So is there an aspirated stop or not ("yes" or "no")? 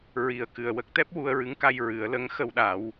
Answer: no